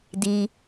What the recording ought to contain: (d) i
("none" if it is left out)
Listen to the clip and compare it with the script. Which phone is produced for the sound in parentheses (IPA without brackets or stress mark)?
d